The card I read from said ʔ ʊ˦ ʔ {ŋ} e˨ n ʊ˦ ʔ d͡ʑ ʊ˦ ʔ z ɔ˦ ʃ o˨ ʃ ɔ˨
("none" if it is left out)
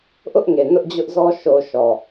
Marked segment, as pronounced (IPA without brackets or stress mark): ŋ